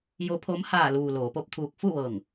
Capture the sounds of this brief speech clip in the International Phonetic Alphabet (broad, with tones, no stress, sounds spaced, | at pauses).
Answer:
j o˧˥ pʰ o˧˥ m h aː˧˩ l uː˩ l oː˩˧ p o˧˥ p̚ t̪ʰ uː˧ k̚ f u˥˨ ʋ ɤː˧˩ ŋ